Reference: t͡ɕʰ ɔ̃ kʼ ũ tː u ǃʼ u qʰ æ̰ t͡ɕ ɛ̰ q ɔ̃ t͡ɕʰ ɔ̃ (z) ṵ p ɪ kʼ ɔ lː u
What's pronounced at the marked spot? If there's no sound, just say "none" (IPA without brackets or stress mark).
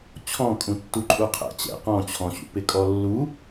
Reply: ɕ